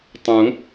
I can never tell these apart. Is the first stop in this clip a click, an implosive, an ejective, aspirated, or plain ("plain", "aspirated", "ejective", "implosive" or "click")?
plain